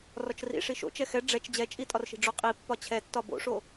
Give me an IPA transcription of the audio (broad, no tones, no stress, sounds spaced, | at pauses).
r ɒ t͡ʃ r ḭ ʂ i ʃ o̰ t͡ʃ ɛ x ɛ ɖ͡ʐ ɛ t͡ʃ d͡ʑ ɛ t͡ʃʼ i tʼ ɒ r ʃ i̤ ɖ͡ʐ o qʼ i pː ɒ t͡ɕʰ ɛ tː ɒ b o̰ ʂ o